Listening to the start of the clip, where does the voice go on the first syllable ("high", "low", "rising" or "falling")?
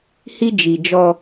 high